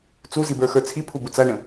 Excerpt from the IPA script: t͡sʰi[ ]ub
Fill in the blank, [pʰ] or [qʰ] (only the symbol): pʰ